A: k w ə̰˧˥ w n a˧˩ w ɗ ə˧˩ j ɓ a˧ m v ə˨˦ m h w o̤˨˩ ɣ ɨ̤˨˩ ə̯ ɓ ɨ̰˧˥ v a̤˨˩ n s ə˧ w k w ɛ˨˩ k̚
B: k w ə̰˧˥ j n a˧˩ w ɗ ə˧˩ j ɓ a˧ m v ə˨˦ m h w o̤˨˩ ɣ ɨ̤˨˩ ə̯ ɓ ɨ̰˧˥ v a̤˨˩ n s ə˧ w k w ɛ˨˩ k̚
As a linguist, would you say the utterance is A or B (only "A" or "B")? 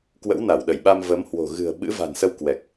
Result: A